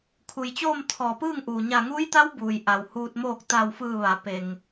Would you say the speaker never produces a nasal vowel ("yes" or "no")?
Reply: yes